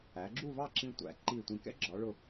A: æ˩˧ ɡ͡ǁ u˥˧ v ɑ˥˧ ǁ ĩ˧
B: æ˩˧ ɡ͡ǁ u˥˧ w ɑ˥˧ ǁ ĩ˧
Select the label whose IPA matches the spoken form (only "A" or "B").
A